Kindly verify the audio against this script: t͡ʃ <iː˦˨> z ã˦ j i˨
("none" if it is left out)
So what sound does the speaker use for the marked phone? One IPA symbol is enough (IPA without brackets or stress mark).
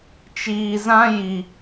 iː˨